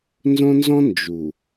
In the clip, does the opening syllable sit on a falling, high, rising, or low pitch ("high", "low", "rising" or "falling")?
high